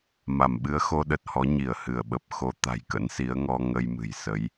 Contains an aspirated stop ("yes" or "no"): no